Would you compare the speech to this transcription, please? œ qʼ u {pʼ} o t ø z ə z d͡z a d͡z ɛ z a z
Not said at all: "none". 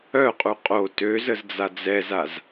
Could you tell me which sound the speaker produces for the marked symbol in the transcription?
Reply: qʼ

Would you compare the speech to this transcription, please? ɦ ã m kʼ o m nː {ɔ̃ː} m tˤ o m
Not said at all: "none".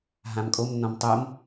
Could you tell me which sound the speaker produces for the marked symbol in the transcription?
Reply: ɔ̃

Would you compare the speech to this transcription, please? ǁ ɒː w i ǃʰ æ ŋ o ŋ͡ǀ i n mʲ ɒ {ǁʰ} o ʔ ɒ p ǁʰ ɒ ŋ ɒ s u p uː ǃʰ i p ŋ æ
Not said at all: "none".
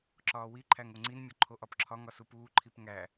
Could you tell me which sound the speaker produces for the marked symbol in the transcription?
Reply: ǃʰ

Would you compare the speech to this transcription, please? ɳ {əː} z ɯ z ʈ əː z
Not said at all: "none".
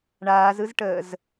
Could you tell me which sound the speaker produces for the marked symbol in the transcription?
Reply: aː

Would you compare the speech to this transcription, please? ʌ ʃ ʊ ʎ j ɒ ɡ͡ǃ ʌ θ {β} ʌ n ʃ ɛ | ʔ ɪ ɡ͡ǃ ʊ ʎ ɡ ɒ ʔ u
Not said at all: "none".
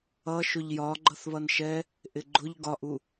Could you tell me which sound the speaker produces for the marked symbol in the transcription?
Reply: β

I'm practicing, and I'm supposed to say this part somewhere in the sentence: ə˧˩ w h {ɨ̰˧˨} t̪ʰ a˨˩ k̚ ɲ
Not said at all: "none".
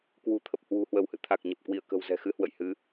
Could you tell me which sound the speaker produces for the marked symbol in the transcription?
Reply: ɨ̰˧˨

